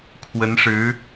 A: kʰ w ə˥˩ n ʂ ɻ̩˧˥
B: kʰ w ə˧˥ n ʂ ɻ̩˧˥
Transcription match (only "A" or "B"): B